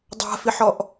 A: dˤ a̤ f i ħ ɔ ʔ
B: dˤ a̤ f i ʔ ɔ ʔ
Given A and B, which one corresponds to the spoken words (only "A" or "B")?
A